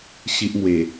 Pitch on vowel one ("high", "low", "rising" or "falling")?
high